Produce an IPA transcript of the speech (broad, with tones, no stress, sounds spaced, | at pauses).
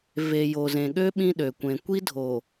v e˨ j o˨ z ẽ˨ ɠ ø˦ ɓ ĩ˦ ɗ ø˨ kʷ ẽ˨ kʷ i˦ dʱ o˨